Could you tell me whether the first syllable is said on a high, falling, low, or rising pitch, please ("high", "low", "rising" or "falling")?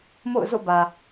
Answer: falling